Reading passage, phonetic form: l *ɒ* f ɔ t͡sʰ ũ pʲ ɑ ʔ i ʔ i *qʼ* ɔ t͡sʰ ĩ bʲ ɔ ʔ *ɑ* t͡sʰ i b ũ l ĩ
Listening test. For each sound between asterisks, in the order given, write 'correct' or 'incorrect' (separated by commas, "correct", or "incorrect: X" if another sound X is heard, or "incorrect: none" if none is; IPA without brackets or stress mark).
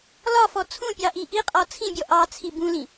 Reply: correct, correct, correct